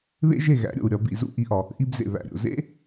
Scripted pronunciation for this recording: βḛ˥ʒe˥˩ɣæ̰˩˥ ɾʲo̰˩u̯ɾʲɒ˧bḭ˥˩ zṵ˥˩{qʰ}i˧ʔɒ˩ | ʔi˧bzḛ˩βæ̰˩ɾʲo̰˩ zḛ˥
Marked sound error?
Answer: yes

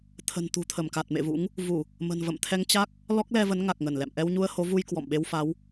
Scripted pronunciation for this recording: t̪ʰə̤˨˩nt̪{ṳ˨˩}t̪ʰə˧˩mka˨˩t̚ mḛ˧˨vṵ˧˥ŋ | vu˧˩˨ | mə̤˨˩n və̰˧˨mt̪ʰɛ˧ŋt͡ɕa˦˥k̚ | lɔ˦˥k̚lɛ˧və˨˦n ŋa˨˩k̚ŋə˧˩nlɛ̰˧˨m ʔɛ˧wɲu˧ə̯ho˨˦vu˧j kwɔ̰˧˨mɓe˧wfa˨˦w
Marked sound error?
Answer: no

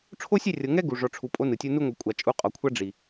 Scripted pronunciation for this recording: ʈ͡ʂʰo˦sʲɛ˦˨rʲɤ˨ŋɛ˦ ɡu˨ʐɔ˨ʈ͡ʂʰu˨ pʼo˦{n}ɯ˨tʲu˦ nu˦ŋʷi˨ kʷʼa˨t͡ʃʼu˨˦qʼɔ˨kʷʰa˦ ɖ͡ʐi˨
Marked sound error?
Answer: no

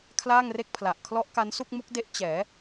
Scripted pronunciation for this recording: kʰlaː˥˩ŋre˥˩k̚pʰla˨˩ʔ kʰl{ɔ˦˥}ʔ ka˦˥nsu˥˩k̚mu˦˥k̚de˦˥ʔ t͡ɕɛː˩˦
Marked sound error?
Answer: no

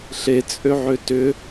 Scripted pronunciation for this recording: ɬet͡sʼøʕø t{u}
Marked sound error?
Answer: yes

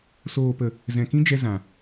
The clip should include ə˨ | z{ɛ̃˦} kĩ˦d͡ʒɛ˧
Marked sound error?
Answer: yes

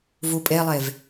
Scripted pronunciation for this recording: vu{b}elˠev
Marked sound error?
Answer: yes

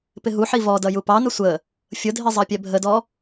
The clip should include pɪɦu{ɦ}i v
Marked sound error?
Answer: yes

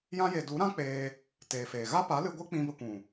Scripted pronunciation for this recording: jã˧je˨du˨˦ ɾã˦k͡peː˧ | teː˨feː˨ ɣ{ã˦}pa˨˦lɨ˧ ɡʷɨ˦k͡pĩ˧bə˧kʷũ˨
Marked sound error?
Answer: yes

